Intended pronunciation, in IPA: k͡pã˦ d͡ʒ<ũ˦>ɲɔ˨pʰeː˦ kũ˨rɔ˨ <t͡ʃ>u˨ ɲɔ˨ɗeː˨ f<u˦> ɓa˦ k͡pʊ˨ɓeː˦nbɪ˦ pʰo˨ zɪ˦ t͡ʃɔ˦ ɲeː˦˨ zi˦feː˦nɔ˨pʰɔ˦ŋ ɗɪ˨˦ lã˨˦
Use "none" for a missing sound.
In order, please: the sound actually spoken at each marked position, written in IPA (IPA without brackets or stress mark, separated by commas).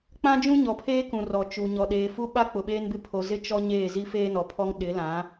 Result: ũ˦, t͡ʃ, u˦